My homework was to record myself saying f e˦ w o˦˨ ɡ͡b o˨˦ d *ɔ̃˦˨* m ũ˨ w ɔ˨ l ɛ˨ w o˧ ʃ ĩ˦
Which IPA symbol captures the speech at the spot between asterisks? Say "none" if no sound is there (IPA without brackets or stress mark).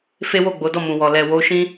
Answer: ɔ˦˨